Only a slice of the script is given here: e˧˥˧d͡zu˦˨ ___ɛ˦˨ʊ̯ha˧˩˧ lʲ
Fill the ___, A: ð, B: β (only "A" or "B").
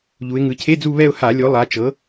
B